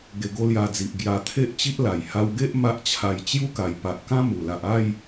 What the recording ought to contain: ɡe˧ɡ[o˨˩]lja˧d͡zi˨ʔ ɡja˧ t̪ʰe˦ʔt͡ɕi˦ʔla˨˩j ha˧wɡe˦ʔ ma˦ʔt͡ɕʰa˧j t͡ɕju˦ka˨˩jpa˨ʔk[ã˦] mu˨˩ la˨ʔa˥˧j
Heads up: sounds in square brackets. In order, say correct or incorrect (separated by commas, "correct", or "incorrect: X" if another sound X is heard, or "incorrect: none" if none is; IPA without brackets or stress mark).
incorrect: o˦, correct